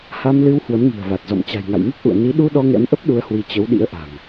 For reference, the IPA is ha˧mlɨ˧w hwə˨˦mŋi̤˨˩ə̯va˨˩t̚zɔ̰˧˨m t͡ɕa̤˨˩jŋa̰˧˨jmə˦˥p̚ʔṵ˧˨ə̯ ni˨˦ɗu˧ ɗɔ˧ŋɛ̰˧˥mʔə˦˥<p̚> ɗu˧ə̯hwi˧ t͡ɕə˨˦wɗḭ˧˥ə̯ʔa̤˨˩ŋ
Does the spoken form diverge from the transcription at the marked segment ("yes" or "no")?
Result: no